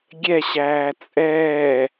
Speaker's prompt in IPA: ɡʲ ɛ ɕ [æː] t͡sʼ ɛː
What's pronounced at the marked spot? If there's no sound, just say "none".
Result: æː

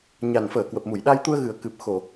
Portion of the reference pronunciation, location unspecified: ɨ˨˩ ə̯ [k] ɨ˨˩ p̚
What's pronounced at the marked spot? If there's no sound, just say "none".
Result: k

